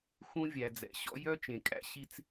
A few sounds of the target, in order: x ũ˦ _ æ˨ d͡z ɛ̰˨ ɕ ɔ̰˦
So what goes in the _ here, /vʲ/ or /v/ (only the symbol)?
vʲ